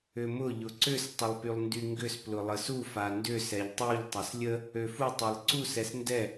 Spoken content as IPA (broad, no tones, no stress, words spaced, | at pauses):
ʏmʊ ʎʊǀʏs tˤʊlˠpylˠndyŋɡʏs plʊlˠəsu fandʏ sɛʎtˤuʎ tˤaslʲə | øfu tˤelˠǀus ɛsndɛ